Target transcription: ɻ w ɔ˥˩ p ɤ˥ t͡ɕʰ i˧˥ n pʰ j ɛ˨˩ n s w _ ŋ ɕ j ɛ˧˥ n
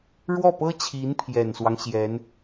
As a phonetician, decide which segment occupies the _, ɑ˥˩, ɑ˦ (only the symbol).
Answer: ɑ˦